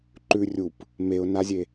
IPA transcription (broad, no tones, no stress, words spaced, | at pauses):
ǃʉ rʲup | meʊ̯nazʲe